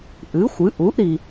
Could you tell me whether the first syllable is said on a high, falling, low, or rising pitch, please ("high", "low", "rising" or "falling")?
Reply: rising